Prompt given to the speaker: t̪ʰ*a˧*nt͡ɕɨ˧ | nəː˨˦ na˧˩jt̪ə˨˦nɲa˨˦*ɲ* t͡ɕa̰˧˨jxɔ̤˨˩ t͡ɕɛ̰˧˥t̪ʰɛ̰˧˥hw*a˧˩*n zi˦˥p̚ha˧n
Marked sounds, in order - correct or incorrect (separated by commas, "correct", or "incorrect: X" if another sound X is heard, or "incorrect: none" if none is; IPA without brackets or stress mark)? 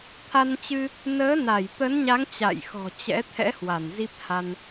correct, incorrect: ŋ, correct